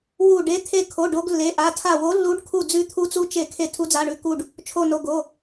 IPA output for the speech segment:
w u˧˩ ɖ e˨˦ t̪ʰ e˧˩ kʰ o˩˧˩ ɖ o˨˦ ɡ lː e˩˧˩ ʔ a˩˧˩ tʰ a˧˩ w o˨˦ lː u˨˦ ɖ kʰ u˧˩ d͡z ʉ˨˦ t̪ʰ u˨˦ t͡s u˨˦ t͡ʃ e˧˩ kʰ e˧˩ tʰ u˨˦ d͡z a˩˧˩ ɳ ʉ˩˧˩ k u˧˩ ɖ | t͡ʃʰ o˧˩ n o˩˧˩ ɡ o˩˧˩

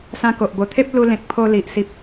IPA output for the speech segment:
s ã˧ k o˨ ʔ b o˨˩ t̪ʰ e˦ p̚ l u˧ l ẽ˨ k̚ pʰ o˧ l i˨ ʔ s i˨ p̚

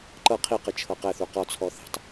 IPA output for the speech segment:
ǃ ɤ qʰ i q ɯ t͡ʃʰ ɤ q ɛ θ u q ɔ t͡sʰ ɔ θ e̤ tˤ

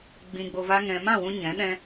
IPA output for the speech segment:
ɡ͡b ĩ˧ ɡ͡b o˧ v a˦ ŋ ɛ̃˧ m ã˦˨ w ũ˧ ɲ ɛ̃˨˦ ɗ ɛ̃˦

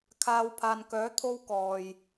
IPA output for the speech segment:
kʰ aː˧ w pʰ aː˨ n k œː˨˥ t̪ʰ o˥ w k ɔː˨ j

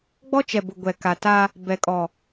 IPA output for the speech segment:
ɡ͡b ɔ˦ t͡ʃ ɛ˨ b ʊ˨ ɡʷ ɛ˨ k a˨ t a˦ | b ɛ˨ kʼ ɔ˨

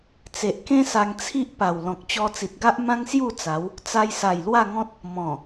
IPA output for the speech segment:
t͡s e˨ ʔ k ẽ˦ s a˧ ŋ t͡sʰ i˦ ʔ p a˨˩ w l ɔ̃˨ k̚ t͡ɕ ɔ˧ t͡s i˨ t̚ ɡ a˦ ʔ m ã˦ ŋ s j u˥˧ t͡s a˨˦ w | t͡s a˧ j s a˨˩ j l w a˥˧ ŋ ɔ̃˦ t̚ | m ɔ̃˨˩

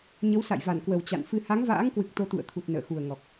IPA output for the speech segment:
ɲ ə˨˦ w s a̰˧˨ j v a˧˩ n k w ə˨˩ w t͡ɕ a̰˧˨ n f ɨ˧ h a˨˦ ŋ v a̰ː˧˥ ŋ k w ɨ˨˩ k̚ t̪ o˧ t̪ ṵ˧˨ ə̯ t̪ʰ u˨˩ t̚ n ə̰ː˧˨ x u˨˩ ə̯ ŋ ɔ˨˩ k̚

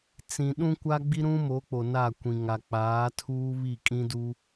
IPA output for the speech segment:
t͡s ĩ˨ ɗ ũ˦ kʷ a˦ ɡ͡b i˦ ɾ ũ˦ m o˨˦ k͡p o˨ n a˦˨ kʷ ĩ˨ ŋ a˨ k͡p aː˨˦ tʰ uː˦ β i˦˨ kʼ ĩ˦ d u˦

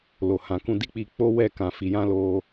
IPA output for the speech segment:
l o˨ h ã˨ k ũ˧ d i˦ k͡p i˧ k͡p o˦ w ɛ˦˨ k ã˨ f i˨ j ã˧ l o˧

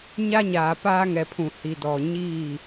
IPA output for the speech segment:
ɲ a˦ ɲ aː˨ p aː˦ ŋ ɛ˨ pʰ ũ˨ h i˨ d ɔ˨ ɲ iː˦˨

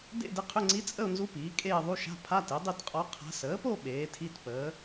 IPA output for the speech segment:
d ḛ˥˧ d ɪ˧˥ qʰ ʏ˧˥˧ ŋ͡ǀ i˧˥ t͡sʼ ə˥˧ ʊ̯ n z u˧˥ p iː˩˥ kʼ eː˥˧ ðˤ u˧˥˧ ʃ a̤˧˥˧ pʰ a˧˥˧ t e˩˥ dˤ i˥˧ t qʼ ɔ˧˥ qʰ a̤˧˥ s əː˩˥ p o˥˧ ɓ eː˩˥ tʰ i˧˥˧ t p əː˩˥

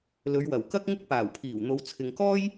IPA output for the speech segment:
l ɵ˨˧ ɥ w ɐ˨˩ w k ɐ˥ k̚ ŋ ɪ˥ k̚ p aː˨˩ w pʰ iː˨˩ w n̪ o˨˧ w t͡sʰ ɪ˨ ŋ k ɔː˥ j

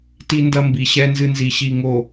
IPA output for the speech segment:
t i˦ n d ɐ˦ m b i˨ ɕ ɛ˦ n z ɨ˦ n z i˨ ɕ i˨ ŋ o˨

